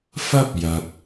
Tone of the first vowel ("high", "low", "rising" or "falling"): high